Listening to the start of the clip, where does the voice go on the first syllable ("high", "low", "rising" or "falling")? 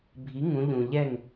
rising